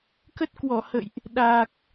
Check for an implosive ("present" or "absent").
present